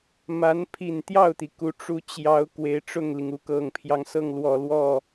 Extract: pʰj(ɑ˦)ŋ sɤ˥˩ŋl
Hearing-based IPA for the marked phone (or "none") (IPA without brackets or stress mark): ɑ˦